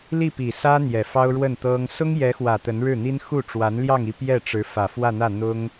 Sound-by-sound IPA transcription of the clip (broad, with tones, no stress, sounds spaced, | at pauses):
l i˥˩ p i˨˩ s ä˥ n̪ j ɛ˨˩ f ɑ˥ ʊ̯ ɻ w ə˥˩ n t̪ ɤ˥ ŋ s ʊ˥ ŋ j ɛ˧˥ x w ä˨˩ t̪ ə˧˥ n ɻ ɻ̩˥˩ n̪ i˥ n x u˥˩ ʈ͡ʂ w a˧˥ n l j ɑ˥˧ ŋ i˥˧ p j ɛ˥˩ ʈ͡ʂ ɻ̩˧˥ f ä˨˩ f w ä˥˧ n̪ ä˥˩ n̪ ʊ˥ ŋ